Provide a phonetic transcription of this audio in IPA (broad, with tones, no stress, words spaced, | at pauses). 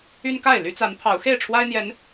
y˦nka˥˨ɪ̯ ly˦t͡sa˨˦npʰɑ˨˦ʊ̯ xe˥˨ɪ̯ʈ͡ʂʰwa˦ɪ̯n̪jɛ˨˦n